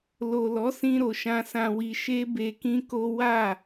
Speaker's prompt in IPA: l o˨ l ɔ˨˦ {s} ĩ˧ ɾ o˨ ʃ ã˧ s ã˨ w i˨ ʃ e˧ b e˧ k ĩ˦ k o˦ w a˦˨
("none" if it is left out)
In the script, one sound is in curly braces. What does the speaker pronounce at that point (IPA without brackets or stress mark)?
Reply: s